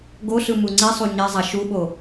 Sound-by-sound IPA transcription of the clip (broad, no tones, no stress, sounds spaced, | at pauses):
ɡ o ɬ ɯ m u ŋ͡ǀ i sˤ u ɲ e zˤ a ʃ u ɓ o